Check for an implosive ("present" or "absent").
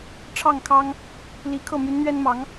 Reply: absent